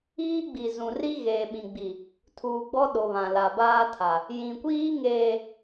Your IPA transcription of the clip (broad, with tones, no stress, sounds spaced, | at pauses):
iː˦ ɡ͡b i˨ z ũ˨ r i˦ ɣ eː˨ ɓ ĩ˨ ɡ͡b i˨ | tʰ uː˨ ɡ͡b ɔ˦ ɗ o˨ β ã˨ l a˨ b aː˦ tʰ a˨ | j ĩ˨ kʷ iː˦ ŋ eː˨